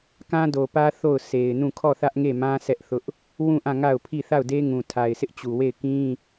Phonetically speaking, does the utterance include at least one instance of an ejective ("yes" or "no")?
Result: no